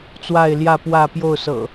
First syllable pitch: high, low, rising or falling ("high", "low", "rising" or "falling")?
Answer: falling